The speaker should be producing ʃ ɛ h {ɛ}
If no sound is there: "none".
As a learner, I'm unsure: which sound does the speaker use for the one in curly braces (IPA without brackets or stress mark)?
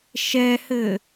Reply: ɘ